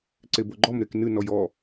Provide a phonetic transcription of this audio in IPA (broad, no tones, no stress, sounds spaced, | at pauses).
ǀ e b o ɡ͡ǃ ɔ m ɾ e k n ɨ n ɔ j ɔ